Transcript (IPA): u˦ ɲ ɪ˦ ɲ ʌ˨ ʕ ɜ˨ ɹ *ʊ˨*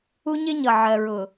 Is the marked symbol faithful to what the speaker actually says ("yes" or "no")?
yes